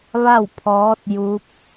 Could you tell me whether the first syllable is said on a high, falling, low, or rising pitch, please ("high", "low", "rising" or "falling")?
falling